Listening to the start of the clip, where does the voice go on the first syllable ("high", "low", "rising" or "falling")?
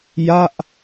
falling